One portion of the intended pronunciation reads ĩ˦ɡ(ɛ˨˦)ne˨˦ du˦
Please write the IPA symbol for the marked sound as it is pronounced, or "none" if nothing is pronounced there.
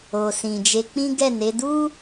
ɛ˦˨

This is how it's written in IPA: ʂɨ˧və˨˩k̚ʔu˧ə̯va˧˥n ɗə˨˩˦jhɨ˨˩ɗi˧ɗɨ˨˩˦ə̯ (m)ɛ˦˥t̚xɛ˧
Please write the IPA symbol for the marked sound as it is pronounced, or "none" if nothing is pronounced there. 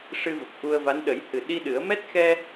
m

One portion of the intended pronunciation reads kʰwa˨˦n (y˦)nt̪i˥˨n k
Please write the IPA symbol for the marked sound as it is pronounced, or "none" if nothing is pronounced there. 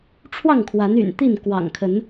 y̰˨˩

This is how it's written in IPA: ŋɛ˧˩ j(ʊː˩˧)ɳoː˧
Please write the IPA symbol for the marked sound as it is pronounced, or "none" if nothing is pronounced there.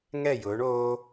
ʊː˩˧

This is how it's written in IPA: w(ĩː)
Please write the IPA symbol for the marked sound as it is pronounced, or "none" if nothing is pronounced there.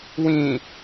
ĩː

